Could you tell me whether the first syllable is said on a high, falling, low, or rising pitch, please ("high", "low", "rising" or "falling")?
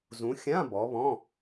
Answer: rising